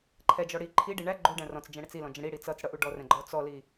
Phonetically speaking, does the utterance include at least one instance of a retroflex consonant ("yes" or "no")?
yes